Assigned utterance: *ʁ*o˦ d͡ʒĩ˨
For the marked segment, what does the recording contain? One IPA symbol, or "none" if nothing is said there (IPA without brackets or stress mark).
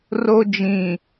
r